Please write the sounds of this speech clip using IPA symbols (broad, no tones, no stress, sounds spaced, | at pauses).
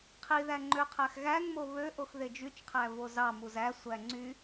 qʰ i ð æ ŋ͡ǃ ø qʰ æ x ɣ æ ŋ m o β ø ʔ o x ð e d͡ʒ y t͡ʃ qʰ æ v o z ɑ m u z æ sʷ æ ŋ͡ǀ y